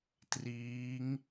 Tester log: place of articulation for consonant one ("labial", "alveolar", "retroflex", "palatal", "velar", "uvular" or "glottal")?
alveolar